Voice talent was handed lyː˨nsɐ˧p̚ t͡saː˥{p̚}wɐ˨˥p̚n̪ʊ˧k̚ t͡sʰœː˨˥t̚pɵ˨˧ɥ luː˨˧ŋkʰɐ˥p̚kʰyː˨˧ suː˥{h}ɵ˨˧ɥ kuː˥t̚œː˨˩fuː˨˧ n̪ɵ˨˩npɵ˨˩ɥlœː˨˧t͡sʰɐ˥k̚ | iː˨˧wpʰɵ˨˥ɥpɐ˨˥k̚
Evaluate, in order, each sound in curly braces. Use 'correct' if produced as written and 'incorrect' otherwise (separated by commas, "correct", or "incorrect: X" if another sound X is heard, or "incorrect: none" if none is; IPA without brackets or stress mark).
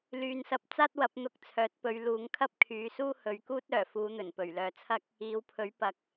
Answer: incorrect: t̚, correct